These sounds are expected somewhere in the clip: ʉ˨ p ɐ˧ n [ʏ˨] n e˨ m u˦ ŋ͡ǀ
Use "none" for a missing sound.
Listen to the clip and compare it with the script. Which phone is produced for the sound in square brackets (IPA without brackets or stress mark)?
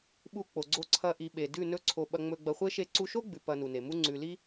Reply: u˨